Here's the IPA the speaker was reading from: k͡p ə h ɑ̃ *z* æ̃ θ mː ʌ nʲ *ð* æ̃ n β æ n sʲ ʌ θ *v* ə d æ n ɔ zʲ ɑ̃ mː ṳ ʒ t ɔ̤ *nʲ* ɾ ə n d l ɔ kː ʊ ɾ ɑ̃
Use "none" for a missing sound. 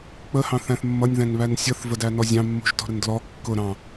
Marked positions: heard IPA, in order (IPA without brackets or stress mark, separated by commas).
θ, ð, v, none